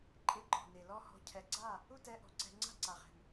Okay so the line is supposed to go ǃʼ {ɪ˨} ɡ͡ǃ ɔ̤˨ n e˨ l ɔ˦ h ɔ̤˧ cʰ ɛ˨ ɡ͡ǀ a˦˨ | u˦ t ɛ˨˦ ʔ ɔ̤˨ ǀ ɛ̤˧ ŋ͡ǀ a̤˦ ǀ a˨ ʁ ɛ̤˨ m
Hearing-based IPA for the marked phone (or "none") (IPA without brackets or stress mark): ɪ˦˨